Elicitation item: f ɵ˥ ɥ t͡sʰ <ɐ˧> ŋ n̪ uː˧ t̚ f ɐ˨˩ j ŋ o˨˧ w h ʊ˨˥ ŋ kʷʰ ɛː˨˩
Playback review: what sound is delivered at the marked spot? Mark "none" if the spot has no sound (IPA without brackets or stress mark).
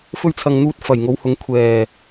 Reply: ɐ˧